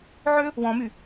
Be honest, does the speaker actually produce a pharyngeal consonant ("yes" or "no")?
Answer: yes